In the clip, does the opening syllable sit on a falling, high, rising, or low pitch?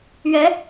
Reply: rising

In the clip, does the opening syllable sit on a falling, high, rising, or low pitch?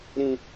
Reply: high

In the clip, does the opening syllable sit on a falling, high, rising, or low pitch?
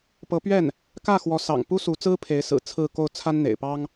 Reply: rising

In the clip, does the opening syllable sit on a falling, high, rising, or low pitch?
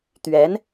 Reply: rising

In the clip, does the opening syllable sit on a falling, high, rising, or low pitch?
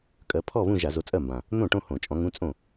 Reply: rising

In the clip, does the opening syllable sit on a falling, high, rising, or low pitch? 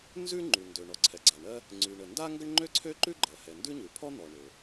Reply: high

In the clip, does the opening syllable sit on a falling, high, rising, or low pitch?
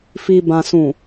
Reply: low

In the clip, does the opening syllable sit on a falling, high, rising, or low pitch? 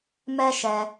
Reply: high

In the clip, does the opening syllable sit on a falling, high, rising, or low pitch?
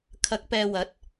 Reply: rising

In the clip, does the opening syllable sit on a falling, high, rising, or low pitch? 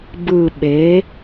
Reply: low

